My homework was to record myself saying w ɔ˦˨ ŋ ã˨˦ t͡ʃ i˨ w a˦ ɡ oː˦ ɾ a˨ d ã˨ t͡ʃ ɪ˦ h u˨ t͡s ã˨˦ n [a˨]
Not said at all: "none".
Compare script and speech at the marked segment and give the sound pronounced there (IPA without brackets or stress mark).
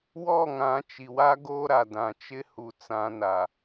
a˨